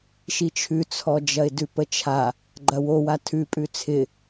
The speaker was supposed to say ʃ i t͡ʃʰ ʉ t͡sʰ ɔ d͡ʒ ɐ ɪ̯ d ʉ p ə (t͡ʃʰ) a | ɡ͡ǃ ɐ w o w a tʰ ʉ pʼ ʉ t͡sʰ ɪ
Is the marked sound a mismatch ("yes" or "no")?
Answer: no